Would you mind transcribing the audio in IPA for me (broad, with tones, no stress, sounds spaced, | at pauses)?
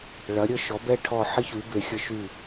ɭ ɐ˩˥ ɾʲ ə˥˩ ʃ ɔ˩˥ b ɛ˥˩ ʈʰ ɔ˥˩ ħ ɪ˥ ç y˩˥ b e˩˥ xʲ ə˧ ʃ y˥˩